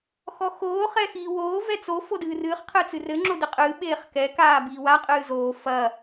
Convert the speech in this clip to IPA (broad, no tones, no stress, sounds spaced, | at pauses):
x ɔ x oː χ ɛ x iː w oː v ɛ t͡s o f o d ɨː r ɨː χ qʰ ɨ t͡s ɨ r ɘ ŋ͡ǁ o d ɨ qʼ ɨː ɓ eː χ k ɛ k aː b iː w a qʼ ɨː z oː f ɐː